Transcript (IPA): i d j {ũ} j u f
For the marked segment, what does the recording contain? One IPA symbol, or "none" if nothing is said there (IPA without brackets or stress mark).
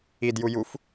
u